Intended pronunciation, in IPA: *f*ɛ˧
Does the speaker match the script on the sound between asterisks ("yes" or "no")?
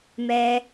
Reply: no